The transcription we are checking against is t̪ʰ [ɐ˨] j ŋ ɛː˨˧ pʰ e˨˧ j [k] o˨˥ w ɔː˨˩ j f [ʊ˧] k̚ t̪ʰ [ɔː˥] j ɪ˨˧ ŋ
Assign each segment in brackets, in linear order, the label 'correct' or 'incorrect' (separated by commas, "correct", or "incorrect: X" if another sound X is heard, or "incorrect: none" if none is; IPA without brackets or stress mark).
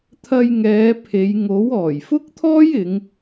incorrect: ɐ˧, incorrect: ŋ, incorrect: ʊ˥, correct